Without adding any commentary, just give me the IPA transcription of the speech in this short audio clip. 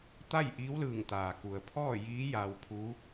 t̪ a˥˨ j ʔ iː˧˥ w l ɯː˧˩ ŋ t̪ aː˩ k u˩ ə̯ pʰ ɔː˥˨ j iː˧˥ j a˧ w pʰ u˧˥

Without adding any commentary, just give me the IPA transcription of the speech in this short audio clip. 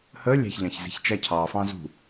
h ə lʲ æ̤ ç ʎ ɑ̃ ç z i̤ ç t͡ʃ æ cʰ ɑ f ɑ̃ z ṳ

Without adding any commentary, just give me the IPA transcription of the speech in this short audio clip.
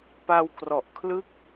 p a˧ w k r ɔ˨˩ ʔ kʰ l ɯ˥˩ k̚

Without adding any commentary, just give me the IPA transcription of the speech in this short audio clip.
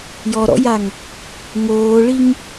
j ɔ ɾ ɔ̰ j a ŋ | ŋ oː ɭ i ŋ

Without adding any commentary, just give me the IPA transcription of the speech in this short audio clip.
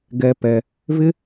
ɡ ɛ˧ p ɛ˧ | v ɪ˦

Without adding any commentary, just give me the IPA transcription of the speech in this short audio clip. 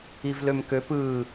i v l ø m k ø p ɯ

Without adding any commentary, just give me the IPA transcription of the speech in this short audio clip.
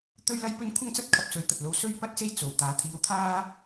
t̪ ɵ˥ ɥ l ɐ˥ j p ɵ˥ n kʷʰ ɐ˥ ŋ t͡s ɐ˥ t̚ kʰ ɐ˧ p̚ s ɵ˨˥ ɥ t̪ ɐ˨ t̚ l o˧ w s ɵ˥ ɥ p ɐ˥ t̚ s e˥ j t͡s o˨ w t̪ aː˨˧ t̪ʰ iː˧ w t̪ʰ aː˥

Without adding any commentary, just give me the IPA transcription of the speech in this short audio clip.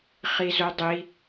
χ i z o dˤ i

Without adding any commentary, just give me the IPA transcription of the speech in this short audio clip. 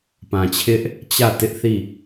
p ã˨ t͡ɕʰ ɪ˦ ʔ | t͡ɕ ä˦˨ t ɪ˦ ʔ θ i˦˨

